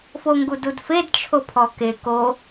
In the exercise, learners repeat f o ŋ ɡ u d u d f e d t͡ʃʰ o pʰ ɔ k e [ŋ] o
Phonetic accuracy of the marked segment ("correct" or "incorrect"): incorrect